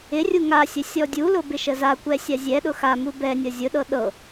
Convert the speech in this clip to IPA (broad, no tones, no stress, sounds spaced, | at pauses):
ɪ rʲ u ŋ a sʲ ə sʲ ɔ dʲ u l ʊ b ɪ ʃ ə z a kʷ ɛ sʲ a zʲ ɛ ɗ ʊ x a m u b ɛ nʲ ɤ zʲ ʊ ɗ ɤ ɗ ɤ